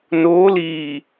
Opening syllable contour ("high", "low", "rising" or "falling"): rising